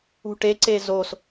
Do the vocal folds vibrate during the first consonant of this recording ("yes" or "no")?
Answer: no